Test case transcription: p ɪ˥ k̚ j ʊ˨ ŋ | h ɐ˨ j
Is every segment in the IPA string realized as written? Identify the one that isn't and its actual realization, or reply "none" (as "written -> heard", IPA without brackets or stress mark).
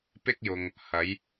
ɐ˨ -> ɐ˨˥